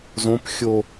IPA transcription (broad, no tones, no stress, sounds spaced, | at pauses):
z õ p xʲ o